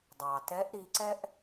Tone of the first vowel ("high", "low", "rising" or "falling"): low